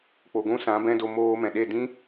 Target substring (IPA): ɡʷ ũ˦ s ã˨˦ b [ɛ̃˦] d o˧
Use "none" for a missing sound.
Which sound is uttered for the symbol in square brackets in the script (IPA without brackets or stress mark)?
ɛ̃˦